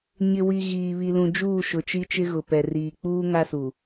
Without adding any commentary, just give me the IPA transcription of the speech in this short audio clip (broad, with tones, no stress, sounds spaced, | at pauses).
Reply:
ɲ ɪ˨ w i˨ ɣ iː˨ β i˨ l ũ˨ d͡ʒ uː˦˨ ʃ ʊ˨ t͡ʃ i˦ t͡ʃ ɪ˦ ɣ ʊ˨ p ɛ˨ r iː˨ k͡p uː˦ ŋ a˦ s u˨